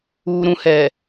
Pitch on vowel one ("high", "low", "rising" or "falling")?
low